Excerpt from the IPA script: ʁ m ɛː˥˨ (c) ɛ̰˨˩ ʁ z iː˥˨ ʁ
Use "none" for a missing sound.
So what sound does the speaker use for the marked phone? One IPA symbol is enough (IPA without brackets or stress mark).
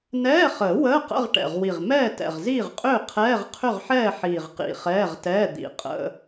t